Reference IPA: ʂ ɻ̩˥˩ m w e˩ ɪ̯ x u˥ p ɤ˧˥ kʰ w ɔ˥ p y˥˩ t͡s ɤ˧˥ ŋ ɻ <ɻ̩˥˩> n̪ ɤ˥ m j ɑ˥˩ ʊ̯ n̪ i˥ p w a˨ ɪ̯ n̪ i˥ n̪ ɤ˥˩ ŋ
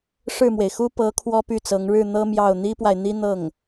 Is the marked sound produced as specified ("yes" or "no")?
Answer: yes